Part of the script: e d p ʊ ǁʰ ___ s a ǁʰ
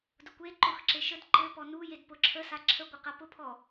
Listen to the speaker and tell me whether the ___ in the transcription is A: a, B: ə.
B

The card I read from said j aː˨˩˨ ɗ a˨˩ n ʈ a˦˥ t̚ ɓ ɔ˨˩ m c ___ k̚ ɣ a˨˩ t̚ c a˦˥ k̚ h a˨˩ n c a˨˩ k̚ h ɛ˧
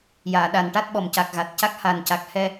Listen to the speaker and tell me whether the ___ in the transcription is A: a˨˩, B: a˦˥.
A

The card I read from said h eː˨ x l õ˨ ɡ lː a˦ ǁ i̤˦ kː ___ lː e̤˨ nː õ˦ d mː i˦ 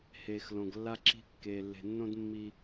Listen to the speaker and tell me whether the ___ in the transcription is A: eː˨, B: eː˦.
A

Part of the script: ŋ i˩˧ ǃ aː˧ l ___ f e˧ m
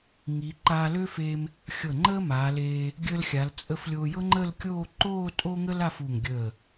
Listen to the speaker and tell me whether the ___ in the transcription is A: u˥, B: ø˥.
B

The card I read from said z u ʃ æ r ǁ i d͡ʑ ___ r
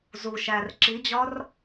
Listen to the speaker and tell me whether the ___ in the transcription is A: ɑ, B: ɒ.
B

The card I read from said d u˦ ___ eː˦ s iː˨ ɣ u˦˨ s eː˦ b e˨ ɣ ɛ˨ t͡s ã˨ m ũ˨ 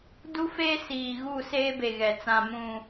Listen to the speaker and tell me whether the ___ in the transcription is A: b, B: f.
B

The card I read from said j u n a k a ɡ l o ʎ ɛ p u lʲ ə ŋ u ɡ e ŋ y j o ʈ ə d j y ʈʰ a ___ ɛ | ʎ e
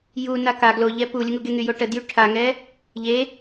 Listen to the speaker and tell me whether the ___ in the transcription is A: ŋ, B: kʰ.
A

